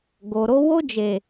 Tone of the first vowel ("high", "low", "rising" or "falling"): low